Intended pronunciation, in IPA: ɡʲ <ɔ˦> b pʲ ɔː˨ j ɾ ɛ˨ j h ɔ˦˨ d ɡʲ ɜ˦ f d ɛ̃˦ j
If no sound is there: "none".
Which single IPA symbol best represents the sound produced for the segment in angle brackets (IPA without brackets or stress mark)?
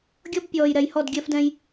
ɔ˦